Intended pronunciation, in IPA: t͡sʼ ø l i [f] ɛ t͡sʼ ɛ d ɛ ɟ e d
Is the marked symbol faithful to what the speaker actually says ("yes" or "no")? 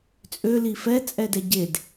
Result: yes